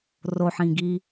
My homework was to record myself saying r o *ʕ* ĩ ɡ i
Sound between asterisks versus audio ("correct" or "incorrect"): incorrect